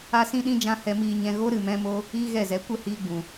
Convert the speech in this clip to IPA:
a˦ s ĩ˦ ɗ ĩ˦ d͡ʒ ã˦ h ɛ˧ m iː˧ ɲ ɛ̃˧ ɣ o˦ ɾ ɨ˨ m ɛ̃˧ m o˧ | iː˦ ɣ ɛ˦˨ z ɛ˨˦ kʷ ə˦˨ h iː˧ ɡ͡b ũ˨

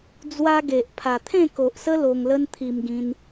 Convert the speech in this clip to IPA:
d͡z w a˦ ɡ e˨ ʔ pʰ a˨˩ t̪ʰ ẽ˥˧ k o˨ ʔ s ə˦ l o˧ ŋ l ə˦ n t̪ʰ i˧ m ɡ ĩ˧ n

